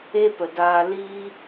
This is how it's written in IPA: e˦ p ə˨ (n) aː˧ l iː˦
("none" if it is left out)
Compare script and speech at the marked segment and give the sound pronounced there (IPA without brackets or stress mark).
d